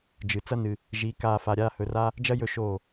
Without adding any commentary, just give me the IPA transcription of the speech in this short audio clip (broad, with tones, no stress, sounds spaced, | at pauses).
d͡ʒ ɨ˨ t͡s ɐ˦ n ɨ˧ | ʒ i˨˦ k aː˧ f a˧ ɾʲ aː˦ h ɵ˧ r a˦ | d͡ʒ ɐ˦ j ɵ˦ ʃ oː˦˨